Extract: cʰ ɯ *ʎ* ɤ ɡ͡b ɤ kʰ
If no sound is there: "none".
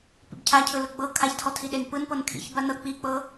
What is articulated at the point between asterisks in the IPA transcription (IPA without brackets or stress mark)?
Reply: l